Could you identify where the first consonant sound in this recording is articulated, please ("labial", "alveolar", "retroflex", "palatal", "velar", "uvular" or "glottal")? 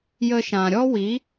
palatal